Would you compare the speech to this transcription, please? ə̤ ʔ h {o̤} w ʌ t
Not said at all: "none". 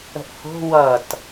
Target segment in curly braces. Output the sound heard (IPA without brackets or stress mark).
o̤